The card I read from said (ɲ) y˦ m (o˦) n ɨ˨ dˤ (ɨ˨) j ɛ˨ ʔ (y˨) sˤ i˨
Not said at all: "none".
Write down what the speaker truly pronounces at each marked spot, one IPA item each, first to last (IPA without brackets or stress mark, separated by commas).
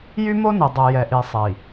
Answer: j, o˦, ɛ˨, i˨